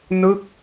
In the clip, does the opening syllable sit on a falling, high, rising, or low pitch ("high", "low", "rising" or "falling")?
falling